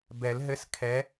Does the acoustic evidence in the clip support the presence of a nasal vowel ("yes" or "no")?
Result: no